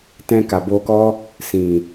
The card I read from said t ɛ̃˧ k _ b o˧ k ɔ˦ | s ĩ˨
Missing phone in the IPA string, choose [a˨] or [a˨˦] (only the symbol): a˨